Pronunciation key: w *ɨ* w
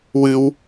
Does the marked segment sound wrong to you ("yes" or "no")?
no